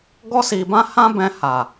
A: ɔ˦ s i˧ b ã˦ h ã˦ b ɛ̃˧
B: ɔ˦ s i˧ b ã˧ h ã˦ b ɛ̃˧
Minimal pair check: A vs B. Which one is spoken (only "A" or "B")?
A